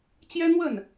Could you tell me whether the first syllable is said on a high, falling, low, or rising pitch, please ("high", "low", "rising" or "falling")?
high